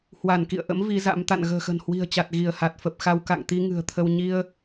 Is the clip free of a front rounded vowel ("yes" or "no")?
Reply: yes